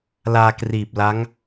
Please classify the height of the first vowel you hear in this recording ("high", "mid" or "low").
low